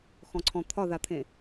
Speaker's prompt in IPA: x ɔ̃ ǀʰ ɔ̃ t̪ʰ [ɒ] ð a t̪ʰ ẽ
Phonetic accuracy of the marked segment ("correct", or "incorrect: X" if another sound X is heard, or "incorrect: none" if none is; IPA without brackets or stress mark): correct